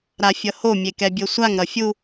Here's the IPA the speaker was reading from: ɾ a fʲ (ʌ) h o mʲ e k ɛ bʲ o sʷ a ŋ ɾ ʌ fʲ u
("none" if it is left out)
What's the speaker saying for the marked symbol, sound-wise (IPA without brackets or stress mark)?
ʌ